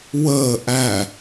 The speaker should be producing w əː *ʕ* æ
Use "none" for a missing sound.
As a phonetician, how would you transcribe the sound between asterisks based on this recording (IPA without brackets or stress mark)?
ʔ